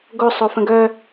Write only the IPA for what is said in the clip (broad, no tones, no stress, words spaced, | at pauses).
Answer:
ɡo sˤofə̃ɡœ